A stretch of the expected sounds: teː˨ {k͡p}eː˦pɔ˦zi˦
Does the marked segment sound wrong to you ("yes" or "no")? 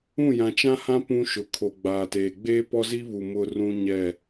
yes